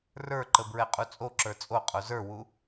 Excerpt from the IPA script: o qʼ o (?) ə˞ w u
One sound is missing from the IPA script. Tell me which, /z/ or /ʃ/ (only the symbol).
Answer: z